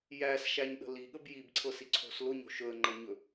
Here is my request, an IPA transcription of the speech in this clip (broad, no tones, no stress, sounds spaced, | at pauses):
j æ s ʃ æ ɲ ɗ ə̤ l i ɠ ə b j i b ǀʰ ɤ s i ǀʰ o̤ s l ʊ ɲ o̤ ʃ ɵ ə̯ ŋ͡ǃ ɤ ɲ ɵ